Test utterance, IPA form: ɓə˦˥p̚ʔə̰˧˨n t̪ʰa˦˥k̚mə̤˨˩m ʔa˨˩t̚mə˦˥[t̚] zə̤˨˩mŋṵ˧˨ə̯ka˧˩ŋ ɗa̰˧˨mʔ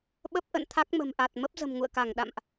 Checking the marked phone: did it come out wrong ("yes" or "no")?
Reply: yes